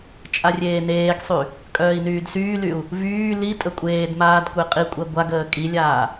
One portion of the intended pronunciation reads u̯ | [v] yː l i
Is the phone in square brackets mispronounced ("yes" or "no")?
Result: no